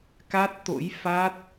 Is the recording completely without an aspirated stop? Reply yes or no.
yes